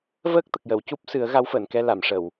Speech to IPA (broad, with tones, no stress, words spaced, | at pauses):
vəː˦˥k̚t̪ə˨˩k̚jə˨˩˨wcu˦˥p̚ sɨ˨˩˦ə̯ ɣa˧˥wfəː˨˩˨nkɛ˧ la˨˩˨mʂə˨˩˨w